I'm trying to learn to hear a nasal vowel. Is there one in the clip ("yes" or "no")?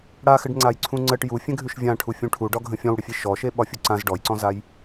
yes